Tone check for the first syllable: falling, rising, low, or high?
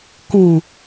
low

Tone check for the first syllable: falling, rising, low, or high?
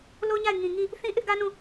high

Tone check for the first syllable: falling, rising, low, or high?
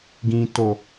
low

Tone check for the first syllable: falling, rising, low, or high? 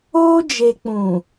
high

